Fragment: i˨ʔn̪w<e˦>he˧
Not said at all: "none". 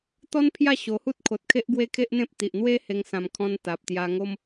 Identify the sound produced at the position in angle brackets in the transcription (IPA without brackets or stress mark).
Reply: e˦